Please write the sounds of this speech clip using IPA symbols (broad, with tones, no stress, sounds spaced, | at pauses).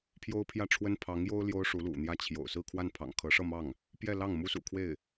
pʰ j o˥ ʊ̯ pʰ j ä˥˩ ʈ͡ʂʰ w ə˥ n pʰ ɑ˧˥ ŋ j o˥ ʊ̯ l j o˥ ʊ̯ ʂ u˧˥ l ṵ˨˩ n̪ j ä˥˩ t͡ɕʰ j o̰˨˩ ʊ̯ s ɹ̩˥˧ kʰ w a˥˩ n pʰ ɑ̰˨˩ ŋ kʰ ɤ˧˥ ʂ ɤ˥˧ m ɑ˥˩ ŋ | p j ɛ˥˧ l ɑ˥˩ ŋ m u˥ s ṵ˨˩ kʰ w e˥˩ ɪ̯